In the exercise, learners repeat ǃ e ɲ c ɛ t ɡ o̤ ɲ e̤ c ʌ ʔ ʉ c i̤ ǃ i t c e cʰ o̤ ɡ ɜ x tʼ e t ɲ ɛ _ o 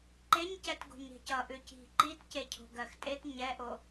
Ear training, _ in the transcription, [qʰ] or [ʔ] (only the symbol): ʔ